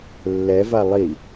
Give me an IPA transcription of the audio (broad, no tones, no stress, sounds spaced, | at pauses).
lː ɛ v a lˠ i